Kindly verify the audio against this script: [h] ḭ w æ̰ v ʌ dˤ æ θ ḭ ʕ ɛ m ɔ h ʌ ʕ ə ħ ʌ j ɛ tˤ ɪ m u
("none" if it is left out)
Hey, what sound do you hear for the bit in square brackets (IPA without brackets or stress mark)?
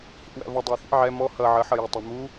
h